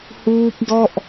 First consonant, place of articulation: glottal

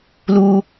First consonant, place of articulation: alveolar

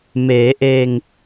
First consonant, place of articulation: labial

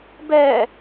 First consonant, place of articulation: labial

